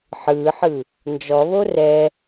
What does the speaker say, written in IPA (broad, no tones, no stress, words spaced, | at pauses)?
ħɯːħɯ | nd͡ʒɔβo rɛ